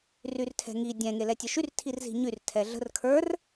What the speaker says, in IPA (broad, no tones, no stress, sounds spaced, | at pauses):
r y r tʰ ɛ̤ ŋ i dʲ ɛ̃ ŋ e l ɛ tʲ ə ʃ y r tʰ i r z i̤ ɲ y r tʰ ɛ ɮ ə̤ r kʰ ə˞ r